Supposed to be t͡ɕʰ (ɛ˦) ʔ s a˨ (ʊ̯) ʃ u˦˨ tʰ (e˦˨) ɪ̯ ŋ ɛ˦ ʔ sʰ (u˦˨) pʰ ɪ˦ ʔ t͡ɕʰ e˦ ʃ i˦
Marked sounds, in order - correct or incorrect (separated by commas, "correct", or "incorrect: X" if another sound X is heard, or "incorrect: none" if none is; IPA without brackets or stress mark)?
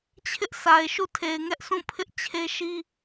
incorrect: ɪ˦, incorrect: ɪ̯, incorrect: e˨, incorrect: ũ˦˨